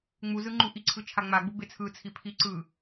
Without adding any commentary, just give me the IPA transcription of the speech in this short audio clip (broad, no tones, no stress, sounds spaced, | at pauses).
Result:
ŋ͡m u z ɯ ŋ͡ǃ u ʔ i ǀʰ ɯ t͡ʃʰ a ŋ͡m a ɡ͡b u b e t͡sʰ ɯ t͡sʰ i pʰ i ǀ ɯ